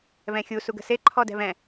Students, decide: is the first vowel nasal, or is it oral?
nasal